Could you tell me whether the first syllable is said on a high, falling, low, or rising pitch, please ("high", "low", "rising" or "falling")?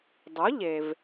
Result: rising